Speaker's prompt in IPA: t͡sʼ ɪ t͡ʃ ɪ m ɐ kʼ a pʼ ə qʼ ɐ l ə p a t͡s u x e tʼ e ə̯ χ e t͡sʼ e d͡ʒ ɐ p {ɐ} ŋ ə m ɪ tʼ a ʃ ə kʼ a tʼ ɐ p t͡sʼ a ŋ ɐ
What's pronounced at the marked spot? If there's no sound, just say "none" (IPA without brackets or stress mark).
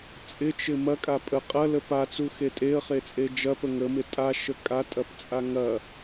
ə